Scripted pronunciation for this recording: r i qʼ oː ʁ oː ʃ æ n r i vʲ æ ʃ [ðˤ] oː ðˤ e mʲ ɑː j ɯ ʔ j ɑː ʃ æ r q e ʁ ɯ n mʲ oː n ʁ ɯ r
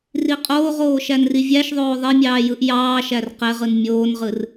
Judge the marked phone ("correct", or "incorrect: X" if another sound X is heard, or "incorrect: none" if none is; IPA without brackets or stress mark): correct